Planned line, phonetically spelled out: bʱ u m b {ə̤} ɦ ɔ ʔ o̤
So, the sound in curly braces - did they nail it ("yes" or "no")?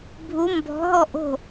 no